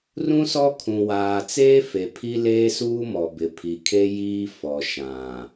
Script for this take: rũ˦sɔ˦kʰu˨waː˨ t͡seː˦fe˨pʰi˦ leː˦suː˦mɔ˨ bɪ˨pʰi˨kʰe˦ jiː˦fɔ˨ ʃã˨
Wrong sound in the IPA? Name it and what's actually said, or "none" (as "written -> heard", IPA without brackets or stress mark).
u˨ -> ũ˨